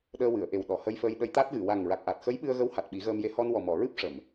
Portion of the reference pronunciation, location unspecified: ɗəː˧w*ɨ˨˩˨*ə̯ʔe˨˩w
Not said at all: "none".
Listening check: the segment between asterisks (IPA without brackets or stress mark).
ɨ˨˩˨